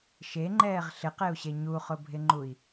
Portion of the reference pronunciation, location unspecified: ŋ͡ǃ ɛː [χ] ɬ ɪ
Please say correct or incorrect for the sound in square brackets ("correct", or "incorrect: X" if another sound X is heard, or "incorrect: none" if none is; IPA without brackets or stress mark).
incorrect: ʁ